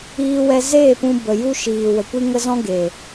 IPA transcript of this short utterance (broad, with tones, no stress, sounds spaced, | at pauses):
iː˧ w ɛ˧ z eː˦˨ p ũ˧ b ə˨ j u˦ ʃ iː˨ w ə˨ kʷ i˦ ŋ ə˦ z ɔ̃˦ ɡ e˨